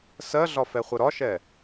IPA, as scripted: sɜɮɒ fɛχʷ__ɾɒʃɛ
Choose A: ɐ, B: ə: B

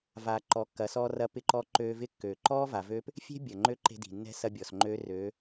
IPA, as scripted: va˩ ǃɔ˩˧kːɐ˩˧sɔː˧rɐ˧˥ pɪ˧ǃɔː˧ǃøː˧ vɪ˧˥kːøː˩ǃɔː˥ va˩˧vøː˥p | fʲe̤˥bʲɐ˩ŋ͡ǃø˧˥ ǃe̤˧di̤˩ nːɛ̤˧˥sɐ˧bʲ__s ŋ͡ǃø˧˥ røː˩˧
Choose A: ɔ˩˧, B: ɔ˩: B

